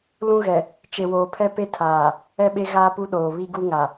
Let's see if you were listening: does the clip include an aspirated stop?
yes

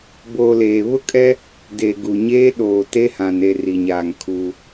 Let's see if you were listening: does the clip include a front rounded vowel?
no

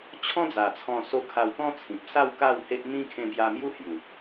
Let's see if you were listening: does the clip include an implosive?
no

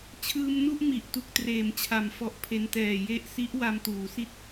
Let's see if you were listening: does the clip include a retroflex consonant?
no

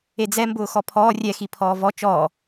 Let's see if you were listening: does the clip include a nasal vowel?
no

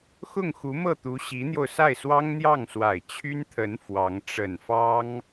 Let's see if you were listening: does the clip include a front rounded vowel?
yes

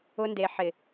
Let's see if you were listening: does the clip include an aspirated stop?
no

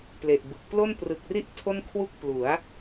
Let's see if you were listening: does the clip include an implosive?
no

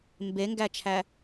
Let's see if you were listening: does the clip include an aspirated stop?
yes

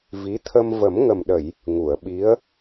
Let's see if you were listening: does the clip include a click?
no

